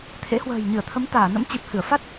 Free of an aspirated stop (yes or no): no